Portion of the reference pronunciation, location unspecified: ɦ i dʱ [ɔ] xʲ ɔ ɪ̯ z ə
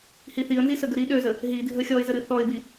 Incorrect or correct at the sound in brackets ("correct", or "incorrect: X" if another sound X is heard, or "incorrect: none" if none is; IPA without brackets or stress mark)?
incorrect: ə